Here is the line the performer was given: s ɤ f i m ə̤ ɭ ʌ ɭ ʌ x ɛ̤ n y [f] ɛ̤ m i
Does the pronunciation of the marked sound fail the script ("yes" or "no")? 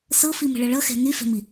no